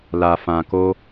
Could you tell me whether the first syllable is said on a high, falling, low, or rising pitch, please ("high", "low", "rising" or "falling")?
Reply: low